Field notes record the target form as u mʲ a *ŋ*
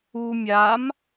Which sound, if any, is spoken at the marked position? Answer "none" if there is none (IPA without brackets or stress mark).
m